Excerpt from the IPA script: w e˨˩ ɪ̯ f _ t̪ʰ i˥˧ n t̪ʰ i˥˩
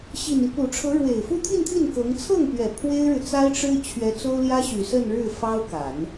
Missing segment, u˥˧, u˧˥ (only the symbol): u˥˧